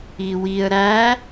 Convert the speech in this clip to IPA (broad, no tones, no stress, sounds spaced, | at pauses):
i w i ə̯ ɾ æ